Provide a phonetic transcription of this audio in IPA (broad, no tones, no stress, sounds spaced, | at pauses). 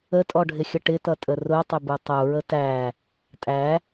ə tʼ ɔ ɖʱ ɪ xʲ ə ʈ ɪ t ʌ tʼ ə r ʊ tˤ ɪ b u tˤ u ɹ ə t æ | tʼ æ